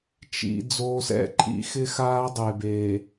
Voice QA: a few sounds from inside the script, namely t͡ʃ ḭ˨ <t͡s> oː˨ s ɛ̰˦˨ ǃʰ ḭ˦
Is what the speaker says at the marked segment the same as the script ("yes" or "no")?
no